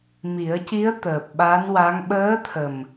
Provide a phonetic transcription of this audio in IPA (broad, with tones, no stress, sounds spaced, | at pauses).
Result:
m i˨˩˦ ə̯ c i˧˥ ə̯ t̪ əː˨˩ p̚ ɓ a˧˥ n w a˧˥ ŋ ɓ əː˧˥ t̪ʰ ə˨˩ m